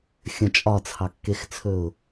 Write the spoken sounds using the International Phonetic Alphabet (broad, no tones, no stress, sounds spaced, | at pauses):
xʲ ə̃ t͡ʃʼ ɒ t͡sʰ ɑ kː e x t͡sʰ ɵ ʊ̯